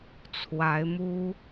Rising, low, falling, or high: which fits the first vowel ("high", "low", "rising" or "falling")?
rising